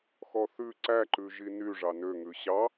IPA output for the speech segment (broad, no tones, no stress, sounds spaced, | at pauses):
x ɔ θ ʉ ǀ æ ǃ ʉ ʒ i n y ʐ ɑ n ø ŋ ʉ ɕ ɑ